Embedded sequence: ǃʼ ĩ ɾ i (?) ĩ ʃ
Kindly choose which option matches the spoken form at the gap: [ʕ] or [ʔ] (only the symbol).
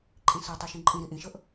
ʔ